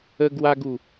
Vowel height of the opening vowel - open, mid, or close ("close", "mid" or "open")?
mid